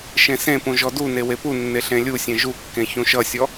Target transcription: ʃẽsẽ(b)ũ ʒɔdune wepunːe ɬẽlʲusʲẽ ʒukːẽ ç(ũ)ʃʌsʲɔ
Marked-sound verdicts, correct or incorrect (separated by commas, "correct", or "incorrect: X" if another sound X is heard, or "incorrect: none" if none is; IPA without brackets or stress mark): incorrect: p, correct